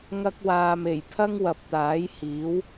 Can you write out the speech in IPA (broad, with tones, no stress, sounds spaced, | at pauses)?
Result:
ŋ ɐ˧ k̚ w aː˨ m e˨˩ j pʰ ɐ˥ ŋ w ɐ˨ p̚ t̪ aː˨˥ j h iː˨˥ w